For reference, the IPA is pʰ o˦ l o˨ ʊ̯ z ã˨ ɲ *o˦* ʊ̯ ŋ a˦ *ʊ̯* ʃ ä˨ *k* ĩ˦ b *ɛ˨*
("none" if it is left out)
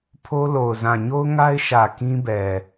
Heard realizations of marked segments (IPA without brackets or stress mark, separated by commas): o˦, ɪ̯, k, ɛ˨